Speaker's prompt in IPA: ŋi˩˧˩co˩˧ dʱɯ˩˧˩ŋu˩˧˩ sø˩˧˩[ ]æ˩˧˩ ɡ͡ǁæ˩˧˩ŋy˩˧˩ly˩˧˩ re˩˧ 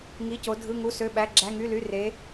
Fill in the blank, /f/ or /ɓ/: ɓ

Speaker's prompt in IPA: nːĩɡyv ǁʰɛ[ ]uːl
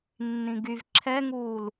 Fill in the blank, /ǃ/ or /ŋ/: ŋ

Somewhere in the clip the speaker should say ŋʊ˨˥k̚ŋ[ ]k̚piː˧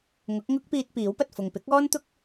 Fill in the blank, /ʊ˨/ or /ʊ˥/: ʊ˥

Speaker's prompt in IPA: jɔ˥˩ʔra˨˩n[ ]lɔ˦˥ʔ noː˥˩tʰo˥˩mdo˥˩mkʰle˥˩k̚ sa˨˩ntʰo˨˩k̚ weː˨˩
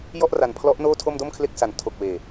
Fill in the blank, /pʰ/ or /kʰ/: pʰ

